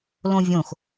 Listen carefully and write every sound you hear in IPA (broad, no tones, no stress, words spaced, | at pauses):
lõvʲõx